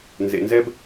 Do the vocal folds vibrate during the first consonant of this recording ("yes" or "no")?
yes